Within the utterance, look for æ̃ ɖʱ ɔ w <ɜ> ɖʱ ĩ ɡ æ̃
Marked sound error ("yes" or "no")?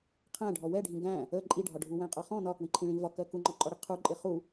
yes